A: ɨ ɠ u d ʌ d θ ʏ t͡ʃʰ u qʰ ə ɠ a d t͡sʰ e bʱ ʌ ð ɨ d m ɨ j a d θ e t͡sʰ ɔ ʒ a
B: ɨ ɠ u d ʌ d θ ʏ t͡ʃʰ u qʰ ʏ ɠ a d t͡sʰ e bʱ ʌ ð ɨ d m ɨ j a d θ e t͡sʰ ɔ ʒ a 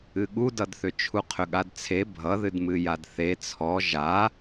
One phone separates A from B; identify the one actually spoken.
B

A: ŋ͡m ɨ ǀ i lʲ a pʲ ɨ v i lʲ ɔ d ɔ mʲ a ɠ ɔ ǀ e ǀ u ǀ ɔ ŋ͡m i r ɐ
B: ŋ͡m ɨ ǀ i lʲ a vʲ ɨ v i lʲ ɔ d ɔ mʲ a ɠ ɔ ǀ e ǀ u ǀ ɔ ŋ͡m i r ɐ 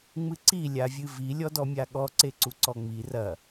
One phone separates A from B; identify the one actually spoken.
B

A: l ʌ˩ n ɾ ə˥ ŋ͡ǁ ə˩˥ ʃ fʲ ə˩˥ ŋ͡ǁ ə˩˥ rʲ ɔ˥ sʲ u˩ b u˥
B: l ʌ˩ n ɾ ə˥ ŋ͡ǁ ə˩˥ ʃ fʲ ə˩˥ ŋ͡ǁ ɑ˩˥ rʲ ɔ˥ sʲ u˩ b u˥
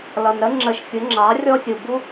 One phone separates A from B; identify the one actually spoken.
B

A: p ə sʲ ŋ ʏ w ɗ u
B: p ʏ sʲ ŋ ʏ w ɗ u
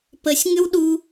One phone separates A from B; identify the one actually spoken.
A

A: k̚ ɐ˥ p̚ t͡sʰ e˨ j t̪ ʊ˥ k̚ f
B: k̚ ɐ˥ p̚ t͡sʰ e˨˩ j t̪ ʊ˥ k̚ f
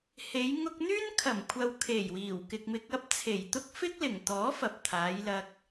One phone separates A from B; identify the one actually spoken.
B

